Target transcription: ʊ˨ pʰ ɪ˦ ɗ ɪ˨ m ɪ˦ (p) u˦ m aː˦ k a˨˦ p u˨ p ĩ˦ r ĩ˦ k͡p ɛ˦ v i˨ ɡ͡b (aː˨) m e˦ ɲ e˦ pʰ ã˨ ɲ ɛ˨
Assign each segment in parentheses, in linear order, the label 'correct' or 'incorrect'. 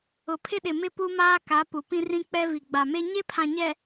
correct, incorrect: a˨

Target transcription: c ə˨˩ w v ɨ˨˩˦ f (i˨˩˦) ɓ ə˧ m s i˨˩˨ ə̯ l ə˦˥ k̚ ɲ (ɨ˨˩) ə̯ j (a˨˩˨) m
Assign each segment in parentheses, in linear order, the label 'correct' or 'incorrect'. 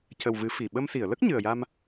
incorrect: i˨˩, correct, incorrect: a˧

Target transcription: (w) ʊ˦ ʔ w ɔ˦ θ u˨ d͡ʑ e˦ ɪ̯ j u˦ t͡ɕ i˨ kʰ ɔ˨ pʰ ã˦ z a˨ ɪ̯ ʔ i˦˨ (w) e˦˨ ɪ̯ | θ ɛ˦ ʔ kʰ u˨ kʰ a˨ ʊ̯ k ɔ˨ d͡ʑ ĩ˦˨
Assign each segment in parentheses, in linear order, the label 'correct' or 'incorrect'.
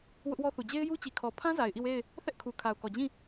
correct, correct

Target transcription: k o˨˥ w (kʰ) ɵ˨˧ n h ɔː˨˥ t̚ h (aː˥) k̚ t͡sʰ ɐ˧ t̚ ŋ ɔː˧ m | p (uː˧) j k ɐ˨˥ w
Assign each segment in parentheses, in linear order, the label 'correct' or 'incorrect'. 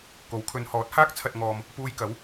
correct, correct, correct

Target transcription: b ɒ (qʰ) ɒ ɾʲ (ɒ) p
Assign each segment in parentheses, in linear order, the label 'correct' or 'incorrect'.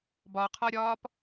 correct, incorrect: ɒː

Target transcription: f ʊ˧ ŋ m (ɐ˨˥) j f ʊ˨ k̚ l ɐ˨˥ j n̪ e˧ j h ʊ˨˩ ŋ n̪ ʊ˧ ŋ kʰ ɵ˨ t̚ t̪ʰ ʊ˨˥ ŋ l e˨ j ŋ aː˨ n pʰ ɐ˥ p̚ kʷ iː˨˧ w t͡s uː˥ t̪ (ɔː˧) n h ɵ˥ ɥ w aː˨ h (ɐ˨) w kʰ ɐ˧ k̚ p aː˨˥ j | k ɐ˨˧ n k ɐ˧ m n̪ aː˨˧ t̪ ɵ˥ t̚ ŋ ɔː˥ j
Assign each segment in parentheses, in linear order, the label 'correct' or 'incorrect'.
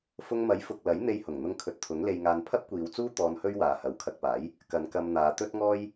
correct, correct, correct

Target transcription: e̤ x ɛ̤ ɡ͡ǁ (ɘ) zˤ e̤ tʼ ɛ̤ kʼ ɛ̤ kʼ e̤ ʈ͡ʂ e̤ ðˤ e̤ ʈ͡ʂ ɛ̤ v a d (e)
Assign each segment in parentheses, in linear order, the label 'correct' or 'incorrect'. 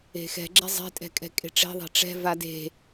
incorrect: ɛ, incorrect: e̤

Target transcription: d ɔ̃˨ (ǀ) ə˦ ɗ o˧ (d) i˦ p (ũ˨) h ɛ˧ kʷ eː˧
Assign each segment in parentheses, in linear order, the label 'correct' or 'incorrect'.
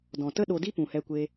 incorrect: t, correct, correct

